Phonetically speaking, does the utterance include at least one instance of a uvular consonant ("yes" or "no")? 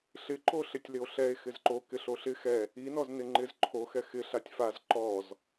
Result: no